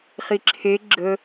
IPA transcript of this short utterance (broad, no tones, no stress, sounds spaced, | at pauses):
χ i ǁʰ e ɡ͡ǁ ə